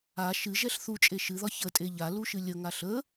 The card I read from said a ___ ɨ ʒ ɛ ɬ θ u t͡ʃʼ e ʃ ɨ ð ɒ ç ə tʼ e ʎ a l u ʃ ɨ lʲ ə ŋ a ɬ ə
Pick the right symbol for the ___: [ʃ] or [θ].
ʃ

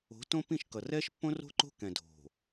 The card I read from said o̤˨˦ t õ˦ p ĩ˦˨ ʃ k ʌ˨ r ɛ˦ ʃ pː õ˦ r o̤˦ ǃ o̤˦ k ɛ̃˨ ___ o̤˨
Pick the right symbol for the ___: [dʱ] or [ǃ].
dʱ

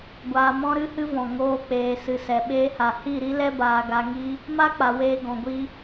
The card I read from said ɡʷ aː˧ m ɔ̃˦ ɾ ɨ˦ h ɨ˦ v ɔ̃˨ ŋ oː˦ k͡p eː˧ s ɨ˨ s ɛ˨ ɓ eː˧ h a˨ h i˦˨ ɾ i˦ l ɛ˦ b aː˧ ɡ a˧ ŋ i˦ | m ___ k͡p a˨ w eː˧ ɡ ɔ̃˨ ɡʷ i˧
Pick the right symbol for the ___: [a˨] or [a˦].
a˦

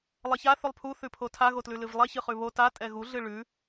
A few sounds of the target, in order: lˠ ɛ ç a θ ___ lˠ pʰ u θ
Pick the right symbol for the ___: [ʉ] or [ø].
ʉ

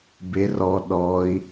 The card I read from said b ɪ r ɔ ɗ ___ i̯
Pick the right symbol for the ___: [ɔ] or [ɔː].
ɔː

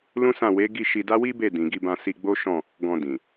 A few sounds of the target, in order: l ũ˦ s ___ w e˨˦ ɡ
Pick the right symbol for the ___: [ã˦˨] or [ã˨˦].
ã˦˨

